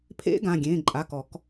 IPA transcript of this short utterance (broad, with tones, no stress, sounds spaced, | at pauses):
pʰ ḛ˦˥ ɡ ã˩˧˩ ɡʲ ẽ˩˧˩ ǃʼ a˩˧˩ k ɔ˧˩˧ k